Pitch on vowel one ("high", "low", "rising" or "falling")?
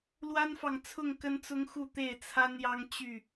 high